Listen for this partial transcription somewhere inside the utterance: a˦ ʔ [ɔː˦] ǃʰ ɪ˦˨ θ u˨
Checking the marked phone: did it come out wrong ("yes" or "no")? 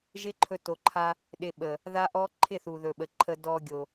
yes